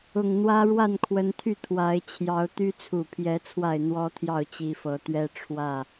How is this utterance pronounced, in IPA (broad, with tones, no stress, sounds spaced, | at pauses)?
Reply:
ʊ˨˩ ŋ n̪ w ä˦ ɻ w a˥˨ n kʰ w ə˨˦ n t̪ʰ y˥˨ t̪ʰ w a˨˦ ɪ̯ t͡ɕʰ j ɑ˨˦ ʊ̯ t̪ y˦ t͡sʰ u˨˩ pʰ j ɛ˨˦ t͡sʰ w a˥˨ ɪ̯ n̪ w ɔ˦ t̪ʰ j ɑ˥˨ ʊ̯ t͡ɕ i˨˦ f ɤ˨˦ t̪ ɥ ɛ˦ ʈ͡ʂʰ w ä˥˨